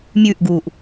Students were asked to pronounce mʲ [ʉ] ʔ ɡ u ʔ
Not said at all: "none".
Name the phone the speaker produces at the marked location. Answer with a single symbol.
ʉ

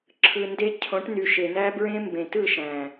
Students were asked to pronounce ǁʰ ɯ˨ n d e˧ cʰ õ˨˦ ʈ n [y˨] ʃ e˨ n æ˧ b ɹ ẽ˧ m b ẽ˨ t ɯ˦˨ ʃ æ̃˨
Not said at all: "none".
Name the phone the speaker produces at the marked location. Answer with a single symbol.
y˨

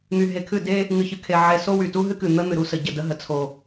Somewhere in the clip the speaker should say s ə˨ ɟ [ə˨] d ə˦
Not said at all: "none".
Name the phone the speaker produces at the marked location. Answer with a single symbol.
ə˦˨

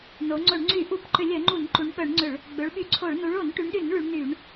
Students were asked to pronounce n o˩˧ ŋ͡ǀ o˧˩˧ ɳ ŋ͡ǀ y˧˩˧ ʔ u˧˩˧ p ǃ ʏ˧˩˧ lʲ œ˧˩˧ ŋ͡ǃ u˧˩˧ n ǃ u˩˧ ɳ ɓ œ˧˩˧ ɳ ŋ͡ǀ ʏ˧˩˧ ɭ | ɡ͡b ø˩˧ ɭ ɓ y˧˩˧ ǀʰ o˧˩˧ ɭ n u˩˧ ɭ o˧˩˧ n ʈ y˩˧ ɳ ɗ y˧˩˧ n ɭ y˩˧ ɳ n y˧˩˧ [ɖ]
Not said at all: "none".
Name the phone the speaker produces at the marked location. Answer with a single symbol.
ɳ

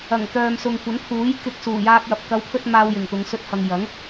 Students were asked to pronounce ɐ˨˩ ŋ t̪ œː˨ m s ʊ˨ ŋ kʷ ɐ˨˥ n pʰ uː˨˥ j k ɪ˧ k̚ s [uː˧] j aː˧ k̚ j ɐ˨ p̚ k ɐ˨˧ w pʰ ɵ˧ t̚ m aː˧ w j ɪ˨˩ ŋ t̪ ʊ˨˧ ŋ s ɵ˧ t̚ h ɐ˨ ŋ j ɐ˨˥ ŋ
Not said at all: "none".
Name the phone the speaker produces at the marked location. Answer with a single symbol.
uː˨˩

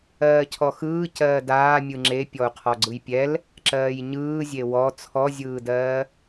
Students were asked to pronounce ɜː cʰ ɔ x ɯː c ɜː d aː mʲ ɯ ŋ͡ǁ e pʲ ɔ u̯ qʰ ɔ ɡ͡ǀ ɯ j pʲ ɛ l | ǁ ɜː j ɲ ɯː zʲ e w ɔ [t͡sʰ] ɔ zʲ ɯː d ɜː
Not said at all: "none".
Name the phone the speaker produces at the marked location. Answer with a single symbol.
t͡sʰ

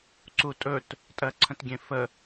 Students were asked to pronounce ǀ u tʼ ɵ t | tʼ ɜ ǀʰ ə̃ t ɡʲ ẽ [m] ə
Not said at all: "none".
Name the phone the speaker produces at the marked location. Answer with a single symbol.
f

